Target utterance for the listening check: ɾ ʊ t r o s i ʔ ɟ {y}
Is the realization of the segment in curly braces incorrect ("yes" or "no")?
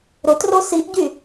no